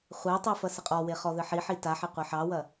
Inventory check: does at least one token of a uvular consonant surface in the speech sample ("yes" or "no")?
yes